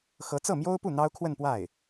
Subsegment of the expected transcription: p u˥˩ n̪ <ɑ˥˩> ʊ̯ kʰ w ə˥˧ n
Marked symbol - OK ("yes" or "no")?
no